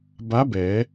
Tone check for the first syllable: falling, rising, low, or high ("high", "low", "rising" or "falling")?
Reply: rising